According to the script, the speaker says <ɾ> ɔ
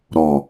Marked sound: correct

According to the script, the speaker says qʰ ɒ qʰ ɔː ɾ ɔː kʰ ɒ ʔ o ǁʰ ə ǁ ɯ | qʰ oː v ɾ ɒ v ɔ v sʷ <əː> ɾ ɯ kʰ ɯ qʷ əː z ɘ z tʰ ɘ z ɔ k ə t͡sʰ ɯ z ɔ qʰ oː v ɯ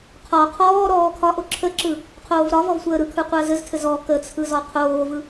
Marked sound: correct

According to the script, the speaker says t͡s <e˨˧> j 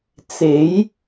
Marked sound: incorrect: e˨˥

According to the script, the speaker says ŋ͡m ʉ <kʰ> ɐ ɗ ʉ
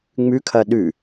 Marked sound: correct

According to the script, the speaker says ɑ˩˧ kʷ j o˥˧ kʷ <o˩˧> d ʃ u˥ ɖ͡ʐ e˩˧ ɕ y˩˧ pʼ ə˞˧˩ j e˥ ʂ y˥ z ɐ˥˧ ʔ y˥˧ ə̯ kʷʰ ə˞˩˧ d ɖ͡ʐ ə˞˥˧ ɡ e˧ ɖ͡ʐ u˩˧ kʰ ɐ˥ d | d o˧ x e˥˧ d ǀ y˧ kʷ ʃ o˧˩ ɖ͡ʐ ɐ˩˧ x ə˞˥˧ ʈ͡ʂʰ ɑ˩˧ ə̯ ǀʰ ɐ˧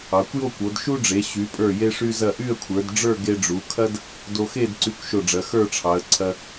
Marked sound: correct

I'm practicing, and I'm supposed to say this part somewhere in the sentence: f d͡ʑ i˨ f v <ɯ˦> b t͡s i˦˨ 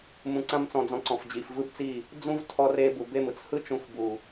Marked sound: correct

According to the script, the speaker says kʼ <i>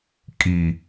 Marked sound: correct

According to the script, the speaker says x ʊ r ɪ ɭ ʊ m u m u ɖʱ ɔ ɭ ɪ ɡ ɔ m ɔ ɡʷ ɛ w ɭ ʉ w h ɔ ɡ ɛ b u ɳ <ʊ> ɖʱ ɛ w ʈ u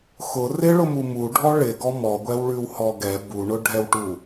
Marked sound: correct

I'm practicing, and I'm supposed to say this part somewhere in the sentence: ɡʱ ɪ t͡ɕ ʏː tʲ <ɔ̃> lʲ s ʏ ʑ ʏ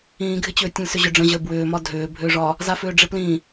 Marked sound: incorrect: ə̃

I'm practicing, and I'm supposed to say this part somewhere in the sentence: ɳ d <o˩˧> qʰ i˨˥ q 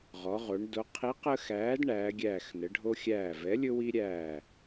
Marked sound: correct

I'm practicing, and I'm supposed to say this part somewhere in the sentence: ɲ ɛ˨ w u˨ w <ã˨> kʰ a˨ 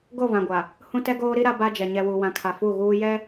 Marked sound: correct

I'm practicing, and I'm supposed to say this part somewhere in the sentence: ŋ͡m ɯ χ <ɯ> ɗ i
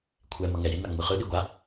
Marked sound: correct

